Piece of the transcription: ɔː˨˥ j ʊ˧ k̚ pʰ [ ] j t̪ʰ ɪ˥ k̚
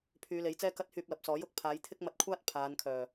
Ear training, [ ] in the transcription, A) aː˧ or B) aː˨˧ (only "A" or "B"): B